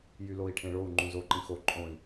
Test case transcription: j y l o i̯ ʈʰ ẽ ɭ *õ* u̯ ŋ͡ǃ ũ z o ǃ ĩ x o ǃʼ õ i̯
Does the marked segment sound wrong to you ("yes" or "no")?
yes